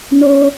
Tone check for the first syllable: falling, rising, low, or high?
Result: high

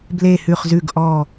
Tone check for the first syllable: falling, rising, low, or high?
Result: low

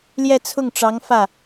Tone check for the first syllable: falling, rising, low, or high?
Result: falling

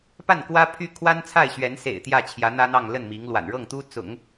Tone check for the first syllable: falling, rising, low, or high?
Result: falling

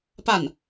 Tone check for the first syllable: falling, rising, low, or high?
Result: falling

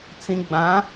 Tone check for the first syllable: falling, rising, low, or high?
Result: low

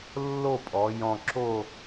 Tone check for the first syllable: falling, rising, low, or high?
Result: falling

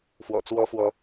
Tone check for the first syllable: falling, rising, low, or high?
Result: low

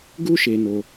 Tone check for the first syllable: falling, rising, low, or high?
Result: high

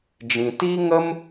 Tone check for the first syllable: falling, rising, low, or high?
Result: low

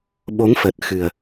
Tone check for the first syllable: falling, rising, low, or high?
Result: rising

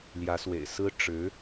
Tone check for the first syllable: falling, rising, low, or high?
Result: rising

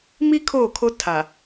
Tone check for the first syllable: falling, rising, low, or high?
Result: high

